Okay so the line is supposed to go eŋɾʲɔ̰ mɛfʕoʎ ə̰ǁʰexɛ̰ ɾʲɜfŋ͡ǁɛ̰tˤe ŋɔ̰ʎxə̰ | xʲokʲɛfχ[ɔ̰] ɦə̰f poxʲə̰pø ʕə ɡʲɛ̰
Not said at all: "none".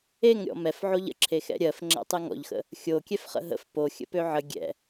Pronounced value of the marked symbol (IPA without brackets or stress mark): ə̰